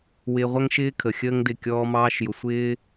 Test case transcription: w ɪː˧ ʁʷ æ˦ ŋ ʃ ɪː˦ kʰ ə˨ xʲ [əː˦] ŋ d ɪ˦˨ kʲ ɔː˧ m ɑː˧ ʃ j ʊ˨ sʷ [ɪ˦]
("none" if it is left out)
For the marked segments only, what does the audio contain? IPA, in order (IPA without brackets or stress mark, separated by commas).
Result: əː˦, ɪː˦